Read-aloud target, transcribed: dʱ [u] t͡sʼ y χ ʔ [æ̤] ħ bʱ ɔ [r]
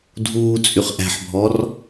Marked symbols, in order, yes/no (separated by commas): no, yes, yes